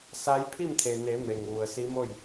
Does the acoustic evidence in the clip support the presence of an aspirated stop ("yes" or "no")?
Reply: yes